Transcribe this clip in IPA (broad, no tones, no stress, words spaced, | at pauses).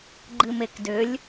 ɡ͡ǃɨmekdʏlʲ